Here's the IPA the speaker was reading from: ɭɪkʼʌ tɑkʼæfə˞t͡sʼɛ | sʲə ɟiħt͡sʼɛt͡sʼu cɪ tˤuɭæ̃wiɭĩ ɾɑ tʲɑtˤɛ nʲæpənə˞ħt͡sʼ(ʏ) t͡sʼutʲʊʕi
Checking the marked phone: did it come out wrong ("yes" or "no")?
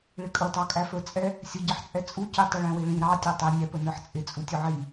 yes